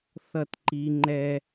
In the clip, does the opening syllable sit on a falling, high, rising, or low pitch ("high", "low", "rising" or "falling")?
falling